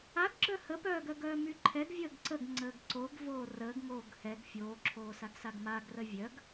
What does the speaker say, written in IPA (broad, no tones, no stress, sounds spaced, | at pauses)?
a ɡ ɡ͡ǁ œ h ə p œː ɡ œ ɡ œː m y ǃʰ ɛ ɡ vʲ əː ɡ ǀ ə ɡ ŋ͡ǀ əː ɡ ǀ o ɡ v oː r əː ɡ ŋ oː ɡ h ɛ ɡ fʲ oː ǁʰ oː s a ɡ s a ɡ m a ɡ r ə vʲ œ ɡ